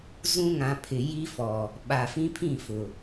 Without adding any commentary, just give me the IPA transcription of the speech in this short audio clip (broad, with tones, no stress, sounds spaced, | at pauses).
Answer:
z ũ˦ ŋ ã˨ pʰ ɪ˨ j i˦ f ɔ˨ | ɓ a˨ f ĩ˦ pʰ ĩ˦˨ f ʊ˨